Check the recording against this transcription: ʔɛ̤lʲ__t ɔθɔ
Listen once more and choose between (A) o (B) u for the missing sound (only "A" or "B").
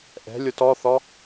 A